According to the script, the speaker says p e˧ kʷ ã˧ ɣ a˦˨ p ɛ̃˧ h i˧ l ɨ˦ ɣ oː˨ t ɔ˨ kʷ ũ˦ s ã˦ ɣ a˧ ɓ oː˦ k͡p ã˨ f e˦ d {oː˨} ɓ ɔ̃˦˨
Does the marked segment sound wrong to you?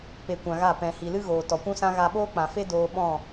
yes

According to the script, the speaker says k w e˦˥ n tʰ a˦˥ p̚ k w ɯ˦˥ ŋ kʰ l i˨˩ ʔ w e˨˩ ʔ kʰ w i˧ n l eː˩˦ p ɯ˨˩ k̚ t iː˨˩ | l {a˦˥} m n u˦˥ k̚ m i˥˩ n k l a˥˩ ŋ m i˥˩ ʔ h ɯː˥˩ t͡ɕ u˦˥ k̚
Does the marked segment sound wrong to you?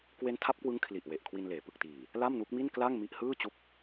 yes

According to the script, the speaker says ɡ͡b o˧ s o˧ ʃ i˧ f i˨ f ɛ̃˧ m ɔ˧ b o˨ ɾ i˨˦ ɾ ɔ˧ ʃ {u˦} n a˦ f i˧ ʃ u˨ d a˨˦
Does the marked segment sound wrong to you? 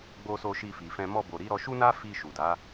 no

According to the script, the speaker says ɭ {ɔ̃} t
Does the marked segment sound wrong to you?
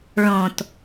no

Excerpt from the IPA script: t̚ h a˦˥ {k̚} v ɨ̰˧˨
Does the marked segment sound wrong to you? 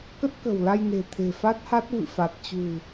yes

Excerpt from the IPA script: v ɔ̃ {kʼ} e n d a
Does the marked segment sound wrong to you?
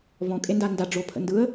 no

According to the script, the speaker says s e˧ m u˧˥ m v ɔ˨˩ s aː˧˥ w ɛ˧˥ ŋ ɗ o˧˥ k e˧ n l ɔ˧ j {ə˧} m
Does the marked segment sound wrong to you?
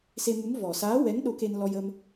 no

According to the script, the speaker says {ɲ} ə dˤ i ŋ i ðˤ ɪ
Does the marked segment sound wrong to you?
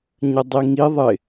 no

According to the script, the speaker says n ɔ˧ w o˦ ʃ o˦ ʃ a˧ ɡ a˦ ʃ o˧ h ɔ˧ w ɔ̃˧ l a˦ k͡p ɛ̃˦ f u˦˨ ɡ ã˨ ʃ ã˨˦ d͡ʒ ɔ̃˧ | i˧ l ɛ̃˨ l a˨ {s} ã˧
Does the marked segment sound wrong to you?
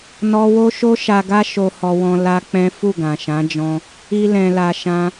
yes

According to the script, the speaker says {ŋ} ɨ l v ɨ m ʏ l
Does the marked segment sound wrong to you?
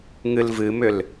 no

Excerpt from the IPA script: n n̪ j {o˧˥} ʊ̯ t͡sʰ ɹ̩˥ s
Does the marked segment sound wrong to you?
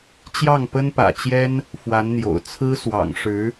yes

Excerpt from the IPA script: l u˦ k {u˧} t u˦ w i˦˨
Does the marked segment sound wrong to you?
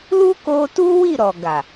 yes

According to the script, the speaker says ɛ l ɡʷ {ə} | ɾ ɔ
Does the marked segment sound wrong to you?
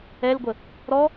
no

